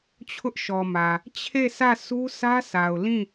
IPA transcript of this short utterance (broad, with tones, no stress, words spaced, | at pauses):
t͡ɕʰʊ˦ʔʃɔ˨mä˨ | t͡ɕʰe˦˨sä˦˨ sʰu˦sʰä˦sʰa˨ʊ̯ lĩ˦˨